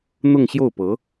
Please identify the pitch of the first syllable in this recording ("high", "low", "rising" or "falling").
falling